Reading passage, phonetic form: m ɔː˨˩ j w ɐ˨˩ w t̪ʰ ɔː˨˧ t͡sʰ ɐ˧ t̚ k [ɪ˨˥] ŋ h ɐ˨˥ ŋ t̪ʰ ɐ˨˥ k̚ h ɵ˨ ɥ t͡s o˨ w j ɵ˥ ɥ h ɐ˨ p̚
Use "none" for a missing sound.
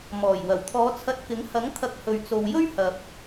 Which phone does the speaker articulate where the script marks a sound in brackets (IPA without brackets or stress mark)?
ɪ˨˥